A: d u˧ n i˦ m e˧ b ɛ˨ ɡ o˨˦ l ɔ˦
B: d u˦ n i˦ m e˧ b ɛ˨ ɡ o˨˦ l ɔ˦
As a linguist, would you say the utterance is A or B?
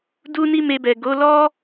B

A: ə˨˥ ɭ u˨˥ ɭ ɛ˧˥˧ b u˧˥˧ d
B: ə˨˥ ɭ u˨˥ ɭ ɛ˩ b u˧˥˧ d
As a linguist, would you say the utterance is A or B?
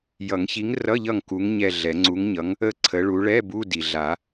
A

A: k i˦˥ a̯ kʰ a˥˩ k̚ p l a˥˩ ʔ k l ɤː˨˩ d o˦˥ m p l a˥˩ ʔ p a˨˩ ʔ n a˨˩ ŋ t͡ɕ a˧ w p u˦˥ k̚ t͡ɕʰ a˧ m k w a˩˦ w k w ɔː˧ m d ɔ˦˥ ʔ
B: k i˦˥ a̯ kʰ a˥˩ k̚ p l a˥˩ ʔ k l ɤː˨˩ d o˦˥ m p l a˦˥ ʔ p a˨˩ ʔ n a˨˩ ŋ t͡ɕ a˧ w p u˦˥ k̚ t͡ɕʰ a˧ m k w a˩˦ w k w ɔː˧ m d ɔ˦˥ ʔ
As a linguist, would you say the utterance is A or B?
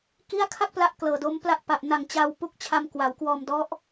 B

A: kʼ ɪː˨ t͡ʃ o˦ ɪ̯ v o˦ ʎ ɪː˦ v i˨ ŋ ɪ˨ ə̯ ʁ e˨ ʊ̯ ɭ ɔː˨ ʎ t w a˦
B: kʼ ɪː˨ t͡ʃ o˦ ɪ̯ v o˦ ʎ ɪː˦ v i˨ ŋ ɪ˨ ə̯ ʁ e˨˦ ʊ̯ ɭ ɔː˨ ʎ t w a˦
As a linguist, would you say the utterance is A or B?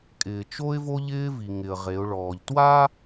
B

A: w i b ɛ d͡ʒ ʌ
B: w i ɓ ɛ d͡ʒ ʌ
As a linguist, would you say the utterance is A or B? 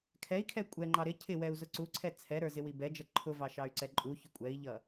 A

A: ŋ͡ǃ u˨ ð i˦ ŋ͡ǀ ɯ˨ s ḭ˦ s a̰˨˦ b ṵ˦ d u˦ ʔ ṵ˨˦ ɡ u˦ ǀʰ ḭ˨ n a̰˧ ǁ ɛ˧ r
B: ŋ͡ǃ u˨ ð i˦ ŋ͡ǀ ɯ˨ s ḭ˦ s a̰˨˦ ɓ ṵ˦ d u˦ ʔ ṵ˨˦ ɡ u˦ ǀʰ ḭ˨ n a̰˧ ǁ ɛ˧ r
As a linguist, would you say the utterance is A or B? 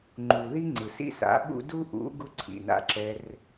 B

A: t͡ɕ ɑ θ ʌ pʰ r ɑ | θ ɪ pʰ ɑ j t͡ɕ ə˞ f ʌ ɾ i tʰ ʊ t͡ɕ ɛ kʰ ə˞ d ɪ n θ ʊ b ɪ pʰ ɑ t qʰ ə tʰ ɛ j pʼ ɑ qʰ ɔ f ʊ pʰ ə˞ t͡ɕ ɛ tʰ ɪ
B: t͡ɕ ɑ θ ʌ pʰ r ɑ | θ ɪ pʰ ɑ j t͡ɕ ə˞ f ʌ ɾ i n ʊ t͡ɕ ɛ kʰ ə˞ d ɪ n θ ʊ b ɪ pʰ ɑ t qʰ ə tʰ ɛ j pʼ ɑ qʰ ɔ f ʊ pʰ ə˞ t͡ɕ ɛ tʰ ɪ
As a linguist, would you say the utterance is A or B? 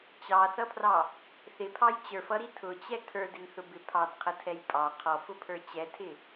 A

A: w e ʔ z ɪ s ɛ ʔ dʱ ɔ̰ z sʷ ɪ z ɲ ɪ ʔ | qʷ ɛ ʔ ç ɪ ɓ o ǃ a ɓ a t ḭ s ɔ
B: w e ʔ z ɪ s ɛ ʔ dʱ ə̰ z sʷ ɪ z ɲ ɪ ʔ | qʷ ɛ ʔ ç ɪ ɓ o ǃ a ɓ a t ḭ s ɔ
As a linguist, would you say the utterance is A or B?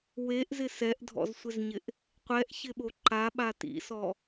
A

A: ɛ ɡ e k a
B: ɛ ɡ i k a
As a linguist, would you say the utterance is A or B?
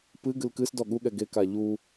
A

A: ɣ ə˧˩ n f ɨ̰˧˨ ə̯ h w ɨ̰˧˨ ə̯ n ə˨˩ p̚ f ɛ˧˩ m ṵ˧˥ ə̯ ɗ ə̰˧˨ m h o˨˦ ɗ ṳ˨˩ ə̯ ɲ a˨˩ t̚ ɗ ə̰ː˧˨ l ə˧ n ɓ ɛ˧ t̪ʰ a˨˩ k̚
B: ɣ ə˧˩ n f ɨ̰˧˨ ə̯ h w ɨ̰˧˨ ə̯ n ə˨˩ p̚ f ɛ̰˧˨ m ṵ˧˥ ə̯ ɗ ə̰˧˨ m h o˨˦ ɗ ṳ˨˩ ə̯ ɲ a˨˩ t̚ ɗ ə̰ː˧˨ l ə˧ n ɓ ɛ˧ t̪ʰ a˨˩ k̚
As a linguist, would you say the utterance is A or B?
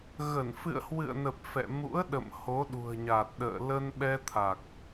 B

